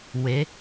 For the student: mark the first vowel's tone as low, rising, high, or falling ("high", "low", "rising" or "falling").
rising